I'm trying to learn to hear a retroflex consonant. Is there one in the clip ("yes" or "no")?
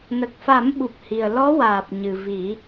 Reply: no